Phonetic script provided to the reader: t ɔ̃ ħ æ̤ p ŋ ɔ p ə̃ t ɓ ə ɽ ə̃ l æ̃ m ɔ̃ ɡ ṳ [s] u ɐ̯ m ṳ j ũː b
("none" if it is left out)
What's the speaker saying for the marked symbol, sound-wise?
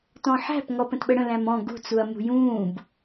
t͡s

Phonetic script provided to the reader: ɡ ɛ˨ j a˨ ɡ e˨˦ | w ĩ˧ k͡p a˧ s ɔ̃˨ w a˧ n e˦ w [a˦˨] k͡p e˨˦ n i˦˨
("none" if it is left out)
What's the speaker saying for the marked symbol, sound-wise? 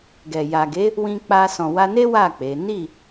a˦˨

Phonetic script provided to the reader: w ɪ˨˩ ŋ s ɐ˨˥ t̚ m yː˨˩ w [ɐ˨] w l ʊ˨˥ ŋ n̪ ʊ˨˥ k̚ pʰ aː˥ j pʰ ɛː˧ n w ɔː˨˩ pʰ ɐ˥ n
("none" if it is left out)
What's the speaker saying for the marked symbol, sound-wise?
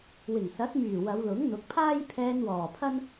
ɐ˨˧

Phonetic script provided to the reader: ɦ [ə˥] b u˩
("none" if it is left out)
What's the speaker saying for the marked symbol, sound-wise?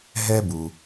ɛ˥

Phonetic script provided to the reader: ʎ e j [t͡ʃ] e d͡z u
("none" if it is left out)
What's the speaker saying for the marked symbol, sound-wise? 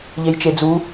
t͡ʃ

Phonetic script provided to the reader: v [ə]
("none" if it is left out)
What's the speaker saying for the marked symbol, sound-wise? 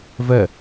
ɛ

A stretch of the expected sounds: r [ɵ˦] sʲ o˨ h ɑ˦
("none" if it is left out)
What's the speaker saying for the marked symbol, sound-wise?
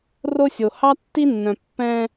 o˦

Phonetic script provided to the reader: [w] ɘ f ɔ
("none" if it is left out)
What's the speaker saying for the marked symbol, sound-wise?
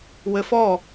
w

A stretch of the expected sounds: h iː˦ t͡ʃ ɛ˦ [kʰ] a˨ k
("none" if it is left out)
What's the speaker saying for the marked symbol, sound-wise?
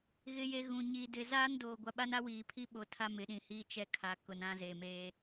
kʰ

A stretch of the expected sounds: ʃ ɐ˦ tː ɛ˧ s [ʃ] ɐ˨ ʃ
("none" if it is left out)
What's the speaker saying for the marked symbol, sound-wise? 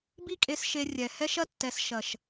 ʃ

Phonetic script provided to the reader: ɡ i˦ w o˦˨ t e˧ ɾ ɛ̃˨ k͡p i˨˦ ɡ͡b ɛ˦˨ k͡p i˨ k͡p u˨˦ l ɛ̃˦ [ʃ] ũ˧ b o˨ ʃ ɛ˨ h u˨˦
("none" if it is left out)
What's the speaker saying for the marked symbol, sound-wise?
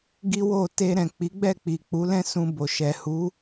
s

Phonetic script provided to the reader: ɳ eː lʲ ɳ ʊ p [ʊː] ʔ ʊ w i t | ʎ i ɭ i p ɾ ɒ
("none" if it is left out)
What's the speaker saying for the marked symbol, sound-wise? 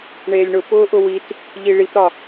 ʊː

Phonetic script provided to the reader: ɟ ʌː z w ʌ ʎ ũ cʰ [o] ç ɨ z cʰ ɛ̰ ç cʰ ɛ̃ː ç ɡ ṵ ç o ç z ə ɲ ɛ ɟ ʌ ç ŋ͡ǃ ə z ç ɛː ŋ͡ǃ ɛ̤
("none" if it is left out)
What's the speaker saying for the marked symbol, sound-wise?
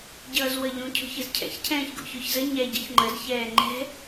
o̤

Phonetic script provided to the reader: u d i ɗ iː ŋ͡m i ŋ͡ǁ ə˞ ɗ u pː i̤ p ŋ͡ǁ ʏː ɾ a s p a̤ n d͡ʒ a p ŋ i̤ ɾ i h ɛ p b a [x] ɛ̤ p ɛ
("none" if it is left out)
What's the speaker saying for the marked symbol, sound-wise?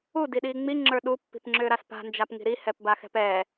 x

